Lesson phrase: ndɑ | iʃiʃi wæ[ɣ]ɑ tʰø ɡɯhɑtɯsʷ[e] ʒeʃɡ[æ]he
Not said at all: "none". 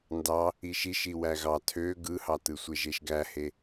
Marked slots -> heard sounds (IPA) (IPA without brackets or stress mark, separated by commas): ɣ, e, æ